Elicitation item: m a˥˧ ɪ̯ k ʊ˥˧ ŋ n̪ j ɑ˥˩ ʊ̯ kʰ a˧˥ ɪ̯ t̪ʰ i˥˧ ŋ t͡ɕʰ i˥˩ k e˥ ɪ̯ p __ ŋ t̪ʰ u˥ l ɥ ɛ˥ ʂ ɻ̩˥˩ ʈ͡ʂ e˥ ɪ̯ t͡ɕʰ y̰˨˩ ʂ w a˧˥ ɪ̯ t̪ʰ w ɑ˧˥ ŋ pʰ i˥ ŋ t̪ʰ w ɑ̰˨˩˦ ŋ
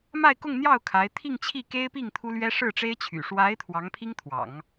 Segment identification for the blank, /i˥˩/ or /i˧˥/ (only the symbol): i˥˩